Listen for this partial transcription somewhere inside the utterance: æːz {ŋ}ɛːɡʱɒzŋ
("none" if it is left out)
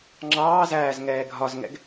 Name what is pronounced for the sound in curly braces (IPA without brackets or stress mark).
ŋ